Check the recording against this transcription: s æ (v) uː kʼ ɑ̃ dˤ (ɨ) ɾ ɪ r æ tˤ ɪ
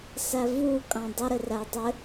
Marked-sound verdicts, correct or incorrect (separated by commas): correct, incorrect